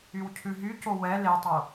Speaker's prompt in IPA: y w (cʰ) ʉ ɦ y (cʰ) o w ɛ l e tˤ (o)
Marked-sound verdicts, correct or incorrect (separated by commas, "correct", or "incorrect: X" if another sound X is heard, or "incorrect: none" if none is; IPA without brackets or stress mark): correct, incorrect: c, correct